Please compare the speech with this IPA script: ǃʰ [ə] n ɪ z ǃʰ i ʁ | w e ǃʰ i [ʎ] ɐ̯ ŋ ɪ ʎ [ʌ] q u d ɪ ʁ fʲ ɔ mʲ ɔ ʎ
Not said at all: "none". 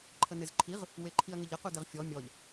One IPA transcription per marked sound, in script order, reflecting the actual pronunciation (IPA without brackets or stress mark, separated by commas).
ə, none, ʌ